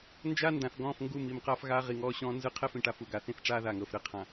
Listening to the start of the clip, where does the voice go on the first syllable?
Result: high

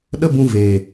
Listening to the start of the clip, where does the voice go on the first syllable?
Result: high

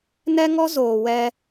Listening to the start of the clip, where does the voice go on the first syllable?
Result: high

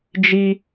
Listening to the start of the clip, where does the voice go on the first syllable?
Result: high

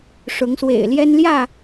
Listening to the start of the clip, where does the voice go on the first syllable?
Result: rising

